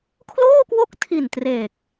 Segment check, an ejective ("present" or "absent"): absent